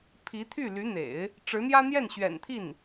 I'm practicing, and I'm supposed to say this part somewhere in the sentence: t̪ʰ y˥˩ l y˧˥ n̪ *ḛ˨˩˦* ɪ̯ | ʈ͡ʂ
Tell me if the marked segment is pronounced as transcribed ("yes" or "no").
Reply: yes